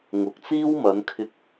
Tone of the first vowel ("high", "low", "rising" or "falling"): low